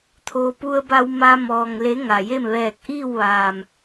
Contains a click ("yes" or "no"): no